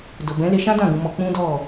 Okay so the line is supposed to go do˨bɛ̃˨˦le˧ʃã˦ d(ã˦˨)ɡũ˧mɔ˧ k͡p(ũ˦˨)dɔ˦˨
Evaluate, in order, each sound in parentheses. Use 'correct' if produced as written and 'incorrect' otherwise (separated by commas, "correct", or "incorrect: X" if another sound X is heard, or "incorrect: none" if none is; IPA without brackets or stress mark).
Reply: correct, incorrect: ũ˦